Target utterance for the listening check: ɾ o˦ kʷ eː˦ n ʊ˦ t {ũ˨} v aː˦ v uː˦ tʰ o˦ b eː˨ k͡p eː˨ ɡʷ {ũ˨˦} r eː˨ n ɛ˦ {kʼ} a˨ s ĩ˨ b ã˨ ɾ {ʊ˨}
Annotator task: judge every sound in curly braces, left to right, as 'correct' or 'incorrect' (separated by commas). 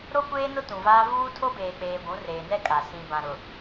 correct, correct, correct, correct